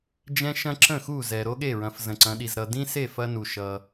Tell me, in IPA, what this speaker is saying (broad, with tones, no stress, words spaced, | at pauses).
d͡ʒɛ̃˥ʃɐ̃˥ǁə̃˥˨ xu˥˨zɛ˨ ɾo˥ɠe˥˨ɹɐ̃˨˦f zə̃˨ǀɐ̃˨˦ɗi˨z ɾʌ˨dĩ˥se˥˨ fɐ˥nu˨ ʃʌ˨